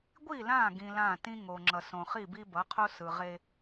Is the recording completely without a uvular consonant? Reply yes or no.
no